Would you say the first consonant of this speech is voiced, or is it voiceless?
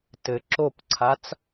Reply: voiceless